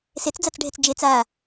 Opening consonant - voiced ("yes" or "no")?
no